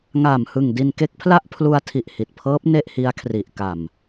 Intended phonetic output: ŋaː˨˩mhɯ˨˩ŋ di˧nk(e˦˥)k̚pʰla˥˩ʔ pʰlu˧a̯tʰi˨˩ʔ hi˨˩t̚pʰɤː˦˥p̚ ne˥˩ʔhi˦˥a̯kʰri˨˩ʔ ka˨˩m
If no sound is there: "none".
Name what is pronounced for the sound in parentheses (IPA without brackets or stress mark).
e˦˥